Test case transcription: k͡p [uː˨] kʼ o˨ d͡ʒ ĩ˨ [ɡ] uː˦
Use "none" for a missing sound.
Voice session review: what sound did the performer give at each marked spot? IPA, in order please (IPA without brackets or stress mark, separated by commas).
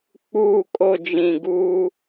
uː˨, ɡ